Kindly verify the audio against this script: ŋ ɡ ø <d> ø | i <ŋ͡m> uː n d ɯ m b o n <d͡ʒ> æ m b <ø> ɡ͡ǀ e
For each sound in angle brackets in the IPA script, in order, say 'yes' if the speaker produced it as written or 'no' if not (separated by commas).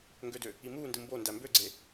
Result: yes, no, no, yes